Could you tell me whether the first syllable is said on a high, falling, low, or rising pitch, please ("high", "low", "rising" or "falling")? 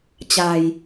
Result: low